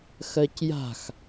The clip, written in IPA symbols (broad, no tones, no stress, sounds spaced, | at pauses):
x ɜ c j a̤ x